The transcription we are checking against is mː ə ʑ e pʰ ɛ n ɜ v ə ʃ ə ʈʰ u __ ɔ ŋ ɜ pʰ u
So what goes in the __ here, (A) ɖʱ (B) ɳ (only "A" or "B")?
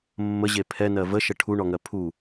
B